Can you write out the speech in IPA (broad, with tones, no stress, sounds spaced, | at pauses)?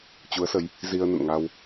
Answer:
t͡ɕ u˨˦ ə̯ s ə˨˦ j | z i˧ ə̯ n ə̰˧˨ n ŋ a˧ w